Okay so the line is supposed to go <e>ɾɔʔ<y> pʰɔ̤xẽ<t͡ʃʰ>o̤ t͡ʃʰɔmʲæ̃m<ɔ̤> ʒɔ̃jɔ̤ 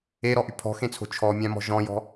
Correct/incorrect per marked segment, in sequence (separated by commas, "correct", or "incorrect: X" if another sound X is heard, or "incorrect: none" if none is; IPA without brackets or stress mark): correct, correct, incorrect: t͡sʰ, correct